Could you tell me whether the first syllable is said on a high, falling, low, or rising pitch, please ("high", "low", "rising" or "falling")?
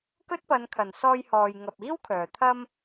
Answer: high